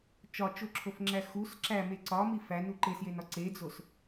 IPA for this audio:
t͡ʃ ɒ t͡ʃ o ǁʰ o f ŋ͡ǁ æ x u s ǁ æ m e ǀ ɒ m i f æ n u ǃ e s j e n ɒ ǀ e d͡z o s

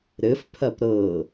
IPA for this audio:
ɾ ɘ f pʰ ɐ p ɾ ɤ

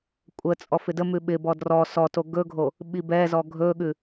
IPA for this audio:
kʷʼ ə t͡sʼ ɔ f ɪ d ə m ʉ ɓ ɪ b ɔ d r ɔ s ɔ t o ɡ ɵ ɡʱ o | ɓ i b ɛ z ɔ ɡʱ ɵ ɠ ʉ

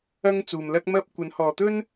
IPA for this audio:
ɐ˥ ŋ t͡s uː˨ m l ɐ˥ k̚ m ɐ˥ p̚ kʷ ɐ˨˥ n h ɔː˨ t̪ ɵ˥ n

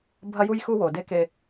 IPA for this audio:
bʱ ɐ˦ j u˦ j x u˦ w o˨ d e˦ k e˦

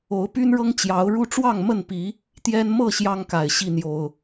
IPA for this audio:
o˨˦ ʊ̯ p y˦ n ɻ ɤ˦ ŋ t͡ɕ j ɑ˨˦ ʊ̯ ɻ u˦ ʈ͡ʂ w ɑ˥˨ ŋ m ə˥˨ n p i˨˦ | t̪ j ɛ˦ n m ɤ˥˨ ɕ j ɑ˦ ŋ k a˨˩ ɪ̯ ɕ i˥˨ n̪ j o˨˩ ʊ̯

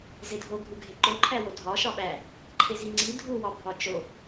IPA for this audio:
z e dʱ o ɡʱ u ɡʱ e ǃ o ǃʰ æ w o dʱ ɒ ʃ ɒ ɓ æ | ǃʰ e z i ŋ͡ǀ i dʱ u w ɒ bʱ ɒ t͡ʃ o

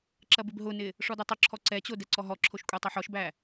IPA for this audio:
ǁ ɐ b ɪ b ɦ ʊ n ɪ | ʂ ɔ d o tˤ ʊ ǁʰ ɔ ǀ ɛ t͡ɕ o d ɛ ǀ ɔ ɦ ɔ ǁʰ o ʃ kʷʼ ɛ tˤ ʊ ħ ɔ ʃ b æ

